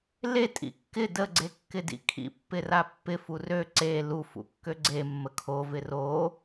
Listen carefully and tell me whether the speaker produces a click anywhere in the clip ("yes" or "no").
yes